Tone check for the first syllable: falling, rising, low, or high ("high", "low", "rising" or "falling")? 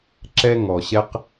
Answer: high